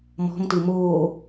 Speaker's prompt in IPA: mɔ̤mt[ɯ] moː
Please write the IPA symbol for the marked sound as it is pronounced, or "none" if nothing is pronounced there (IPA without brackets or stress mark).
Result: ɯ